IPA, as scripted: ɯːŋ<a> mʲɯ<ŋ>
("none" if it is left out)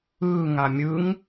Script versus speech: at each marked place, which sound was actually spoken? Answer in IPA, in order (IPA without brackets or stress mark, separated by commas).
a, ŋ